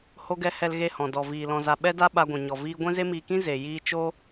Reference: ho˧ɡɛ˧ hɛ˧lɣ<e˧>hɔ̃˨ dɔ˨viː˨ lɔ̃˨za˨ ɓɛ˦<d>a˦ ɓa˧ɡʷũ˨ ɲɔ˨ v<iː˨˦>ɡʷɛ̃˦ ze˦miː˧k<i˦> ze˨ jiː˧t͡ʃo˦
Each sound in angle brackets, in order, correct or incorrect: correct, correct, incorrect: iː˧, incorrect: ĩ˦

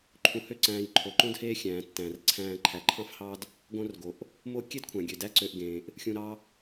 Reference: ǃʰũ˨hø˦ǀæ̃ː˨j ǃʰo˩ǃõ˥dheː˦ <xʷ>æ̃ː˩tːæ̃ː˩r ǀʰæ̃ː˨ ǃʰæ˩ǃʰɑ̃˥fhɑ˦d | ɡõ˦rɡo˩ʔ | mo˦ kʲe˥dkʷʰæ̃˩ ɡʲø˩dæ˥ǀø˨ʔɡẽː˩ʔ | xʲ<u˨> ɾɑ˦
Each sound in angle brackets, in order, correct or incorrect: incorrect: xʲ, incorrect: ũ˨

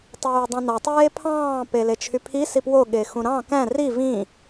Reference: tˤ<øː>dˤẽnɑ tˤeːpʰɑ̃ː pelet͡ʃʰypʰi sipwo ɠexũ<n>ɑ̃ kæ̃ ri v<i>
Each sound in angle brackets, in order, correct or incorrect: correct, incorrect: ɾ, incorrect: ĩ

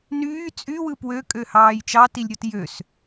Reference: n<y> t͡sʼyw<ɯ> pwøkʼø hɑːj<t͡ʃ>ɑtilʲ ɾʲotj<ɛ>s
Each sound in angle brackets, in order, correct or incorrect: incorrect: yː, correct, correct, incorrect: ø

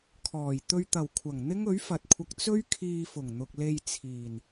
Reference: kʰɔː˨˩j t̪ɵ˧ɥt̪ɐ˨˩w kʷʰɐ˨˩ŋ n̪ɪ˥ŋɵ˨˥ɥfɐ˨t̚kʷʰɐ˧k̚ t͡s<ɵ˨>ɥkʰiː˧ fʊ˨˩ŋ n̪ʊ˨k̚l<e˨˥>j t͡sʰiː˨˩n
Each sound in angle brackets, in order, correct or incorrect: incorrect: ɵ˥, incorrect: e˧

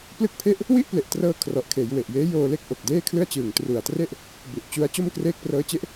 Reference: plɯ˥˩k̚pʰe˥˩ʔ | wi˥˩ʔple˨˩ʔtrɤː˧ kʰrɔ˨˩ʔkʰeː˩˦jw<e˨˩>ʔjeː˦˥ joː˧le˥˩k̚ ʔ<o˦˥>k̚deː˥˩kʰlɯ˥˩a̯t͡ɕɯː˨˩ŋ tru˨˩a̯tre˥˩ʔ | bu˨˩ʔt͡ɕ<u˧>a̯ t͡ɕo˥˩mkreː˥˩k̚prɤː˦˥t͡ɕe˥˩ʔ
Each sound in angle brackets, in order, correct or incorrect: correct, incorrect: o˨˩, incorrect: u˦˥

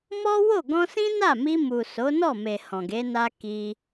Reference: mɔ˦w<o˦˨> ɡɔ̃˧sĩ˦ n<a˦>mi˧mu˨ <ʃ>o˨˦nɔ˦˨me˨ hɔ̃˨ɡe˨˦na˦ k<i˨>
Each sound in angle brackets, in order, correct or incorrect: correct, incorrect: a˦˨, incorrect: s, incorrect: i˧

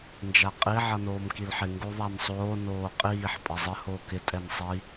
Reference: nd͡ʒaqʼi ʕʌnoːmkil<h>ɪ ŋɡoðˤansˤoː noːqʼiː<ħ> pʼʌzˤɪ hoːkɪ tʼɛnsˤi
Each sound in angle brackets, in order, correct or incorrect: incorrect: ħ, correct

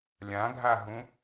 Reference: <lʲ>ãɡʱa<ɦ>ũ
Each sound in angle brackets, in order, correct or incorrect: correct, correct

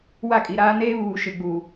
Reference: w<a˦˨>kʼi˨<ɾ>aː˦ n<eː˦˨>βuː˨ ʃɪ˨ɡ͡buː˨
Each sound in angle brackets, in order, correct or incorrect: correct, correct, incorrect: eː˦

